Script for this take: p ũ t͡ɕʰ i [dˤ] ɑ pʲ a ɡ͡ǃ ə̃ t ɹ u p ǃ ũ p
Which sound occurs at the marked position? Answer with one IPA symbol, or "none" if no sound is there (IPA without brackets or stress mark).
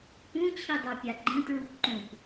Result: dˤ